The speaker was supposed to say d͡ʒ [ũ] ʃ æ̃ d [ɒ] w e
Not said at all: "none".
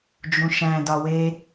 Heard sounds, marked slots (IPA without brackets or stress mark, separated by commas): ũ, ɒ